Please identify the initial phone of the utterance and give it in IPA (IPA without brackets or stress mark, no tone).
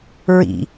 ɹ